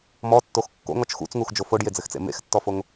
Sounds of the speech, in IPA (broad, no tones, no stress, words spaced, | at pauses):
mɔtːox kːo̰ŋɔt͡ʃ xṵt͡sŋuxd͡ʒo foɖjed͡zɘxt͡sḛ mḛxtːɔfoŋ